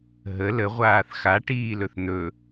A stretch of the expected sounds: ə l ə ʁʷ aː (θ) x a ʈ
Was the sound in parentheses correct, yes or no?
yes